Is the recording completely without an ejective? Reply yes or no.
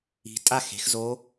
no